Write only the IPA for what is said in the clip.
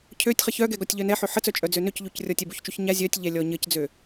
cʰøtʲ χəçœɡɛ ɡɔtʲʎœnɛħø ħət͡sœ t͡ʃʼœd͡zønøcʎuc rʲɔtʲɛbuçt͡ʃuç ɲa zʲœtʲʎɛ lʲɔɲəcd͡zø

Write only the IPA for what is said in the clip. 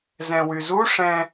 zɛ̃wyzu ʂɛ̃

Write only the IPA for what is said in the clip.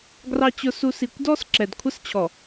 ɡrɑ˨t͡ɕʊ˨su˨ si˨kʷdɔ˦s ǁɛ˨dkʷʰə˦st͡ɕʰɔ˨

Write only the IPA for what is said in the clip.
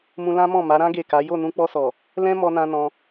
mũ˧lã˦ mɔ̃˦˨ma˨˦ɾã˦ ɡe˦˨ka˨˦ jo˦˨nũ˧k͡pɔ˧sɔ˨ | lɛ̃˦mɔ˧nã˧ nɔ̃˧

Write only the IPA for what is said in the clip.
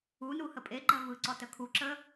unu həpʼeɡ͡ǃɜ vɯǀɔ təkʰuǁə

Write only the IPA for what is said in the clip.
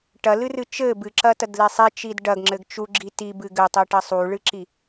ʈɐlɨrɨ t͡ʃɘ bɨǁɐtɐdle sˤit͡ʃid ɖɐɡŋ͡ǁɘɡ t͡ʃuɡ͡ǁi tibɨ ɡɘtˤiʈɐ sˤuɭɨǁi

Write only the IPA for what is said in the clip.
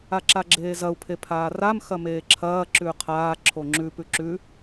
aǁaɡ͡ǁeːzɐu̯ pʰepʰaːram xɐmeːǁʰɐː ǁʉqʰaː ǁʰoŋ͡ǁʉ pʉǁʉ

